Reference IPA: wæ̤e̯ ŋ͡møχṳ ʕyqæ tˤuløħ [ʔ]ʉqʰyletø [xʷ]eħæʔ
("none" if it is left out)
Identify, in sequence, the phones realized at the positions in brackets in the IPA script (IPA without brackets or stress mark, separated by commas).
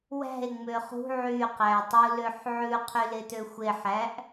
ʕ, xʷ